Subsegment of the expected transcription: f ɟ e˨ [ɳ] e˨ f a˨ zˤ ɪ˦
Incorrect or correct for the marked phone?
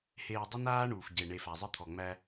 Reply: correct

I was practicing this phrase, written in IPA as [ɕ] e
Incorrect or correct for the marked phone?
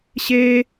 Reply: correct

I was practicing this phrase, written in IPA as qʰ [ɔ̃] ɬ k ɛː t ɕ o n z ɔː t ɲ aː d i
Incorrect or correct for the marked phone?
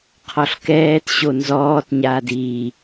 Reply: incorrect: ɔ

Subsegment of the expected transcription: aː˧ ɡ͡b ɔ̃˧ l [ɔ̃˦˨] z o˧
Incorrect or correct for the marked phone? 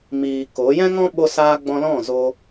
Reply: correct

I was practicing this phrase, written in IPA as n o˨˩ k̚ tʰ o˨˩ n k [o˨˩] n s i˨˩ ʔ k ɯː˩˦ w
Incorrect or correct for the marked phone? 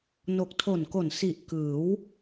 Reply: correct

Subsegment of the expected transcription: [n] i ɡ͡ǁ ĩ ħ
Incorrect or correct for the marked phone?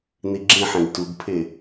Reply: correct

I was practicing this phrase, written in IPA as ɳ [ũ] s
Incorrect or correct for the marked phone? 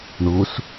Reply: incorrect: u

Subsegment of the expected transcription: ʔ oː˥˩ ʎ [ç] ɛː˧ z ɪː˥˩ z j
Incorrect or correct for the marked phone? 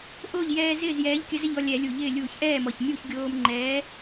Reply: incorrect: j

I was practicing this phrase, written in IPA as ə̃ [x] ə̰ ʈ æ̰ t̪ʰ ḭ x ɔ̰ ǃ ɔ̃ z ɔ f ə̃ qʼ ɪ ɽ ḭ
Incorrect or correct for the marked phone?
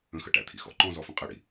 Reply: correct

